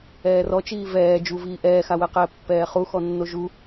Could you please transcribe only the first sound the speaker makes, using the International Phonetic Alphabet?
ɛː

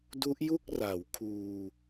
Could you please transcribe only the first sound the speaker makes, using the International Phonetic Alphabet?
d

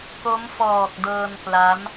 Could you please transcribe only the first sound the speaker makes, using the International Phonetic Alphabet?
k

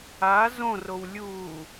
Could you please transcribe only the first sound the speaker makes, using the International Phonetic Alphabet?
a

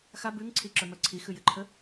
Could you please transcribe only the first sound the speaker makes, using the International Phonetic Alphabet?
x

